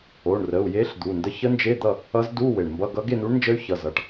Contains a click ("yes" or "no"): no